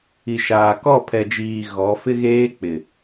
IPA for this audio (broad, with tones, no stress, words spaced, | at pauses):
i˨ʃaː˨ kɔ˦˨pʰɛ˨d͡ʒiː˨ ɣɔ˨˦fɪ˦ɣeː˦k͡pɪ˨